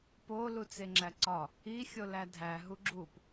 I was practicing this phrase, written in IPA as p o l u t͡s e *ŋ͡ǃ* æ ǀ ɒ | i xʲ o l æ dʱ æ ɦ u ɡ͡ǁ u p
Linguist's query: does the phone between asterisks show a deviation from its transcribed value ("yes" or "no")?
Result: yes